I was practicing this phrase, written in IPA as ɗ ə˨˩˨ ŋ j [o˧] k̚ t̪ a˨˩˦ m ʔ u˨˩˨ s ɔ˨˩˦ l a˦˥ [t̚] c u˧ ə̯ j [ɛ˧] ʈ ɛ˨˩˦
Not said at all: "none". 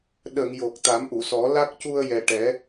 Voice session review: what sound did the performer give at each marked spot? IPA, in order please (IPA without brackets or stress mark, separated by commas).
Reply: o˨˩, k̚, ɛ˨˩